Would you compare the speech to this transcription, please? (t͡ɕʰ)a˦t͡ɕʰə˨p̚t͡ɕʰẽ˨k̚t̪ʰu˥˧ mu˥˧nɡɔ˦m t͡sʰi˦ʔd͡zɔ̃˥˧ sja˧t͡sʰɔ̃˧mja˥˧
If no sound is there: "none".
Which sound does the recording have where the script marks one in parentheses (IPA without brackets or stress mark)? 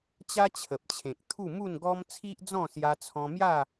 t͡ɕ